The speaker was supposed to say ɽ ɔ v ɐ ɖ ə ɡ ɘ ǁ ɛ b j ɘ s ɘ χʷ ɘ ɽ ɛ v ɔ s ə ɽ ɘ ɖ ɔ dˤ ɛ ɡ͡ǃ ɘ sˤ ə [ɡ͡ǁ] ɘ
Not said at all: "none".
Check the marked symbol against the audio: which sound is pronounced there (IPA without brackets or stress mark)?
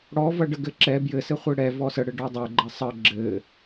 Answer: ɡ͡ǁ